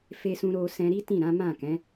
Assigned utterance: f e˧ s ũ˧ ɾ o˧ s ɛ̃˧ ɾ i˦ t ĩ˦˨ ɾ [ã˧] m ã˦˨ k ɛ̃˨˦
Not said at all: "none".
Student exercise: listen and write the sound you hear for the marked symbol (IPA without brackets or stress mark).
ã˨˦